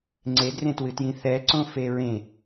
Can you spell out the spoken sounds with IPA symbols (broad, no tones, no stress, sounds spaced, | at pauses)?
ŋ͡ǀ e d r ẽ t w ɨ t j ĩ θ ɛ ǀ õ f e ɹ ẽ